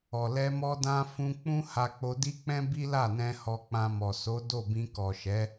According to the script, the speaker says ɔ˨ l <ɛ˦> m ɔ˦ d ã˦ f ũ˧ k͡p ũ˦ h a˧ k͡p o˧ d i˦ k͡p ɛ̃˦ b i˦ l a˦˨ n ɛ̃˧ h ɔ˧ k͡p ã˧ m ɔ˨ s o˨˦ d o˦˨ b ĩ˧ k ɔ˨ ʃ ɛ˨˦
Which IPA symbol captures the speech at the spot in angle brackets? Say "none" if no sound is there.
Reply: ɛ˧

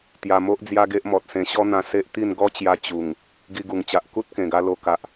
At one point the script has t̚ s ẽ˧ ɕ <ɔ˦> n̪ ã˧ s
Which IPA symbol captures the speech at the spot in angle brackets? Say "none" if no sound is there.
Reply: ɔ˦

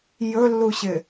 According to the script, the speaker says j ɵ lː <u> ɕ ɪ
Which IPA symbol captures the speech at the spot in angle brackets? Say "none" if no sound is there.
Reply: u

